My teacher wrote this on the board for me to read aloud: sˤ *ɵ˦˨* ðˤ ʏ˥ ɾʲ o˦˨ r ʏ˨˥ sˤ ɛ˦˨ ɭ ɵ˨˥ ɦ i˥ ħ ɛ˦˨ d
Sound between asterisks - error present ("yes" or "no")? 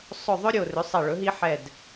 no